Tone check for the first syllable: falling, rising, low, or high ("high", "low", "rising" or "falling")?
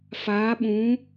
rising